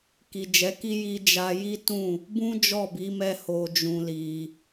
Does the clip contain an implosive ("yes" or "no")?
no